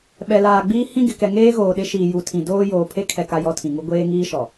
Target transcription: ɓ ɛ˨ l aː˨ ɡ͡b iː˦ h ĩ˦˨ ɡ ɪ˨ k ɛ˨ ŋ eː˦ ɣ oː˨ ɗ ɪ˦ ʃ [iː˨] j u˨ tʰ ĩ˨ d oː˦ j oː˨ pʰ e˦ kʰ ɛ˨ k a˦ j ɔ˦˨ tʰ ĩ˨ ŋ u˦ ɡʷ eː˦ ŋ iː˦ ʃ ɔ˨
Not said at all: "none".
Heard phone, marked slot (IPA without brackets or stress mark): iː˨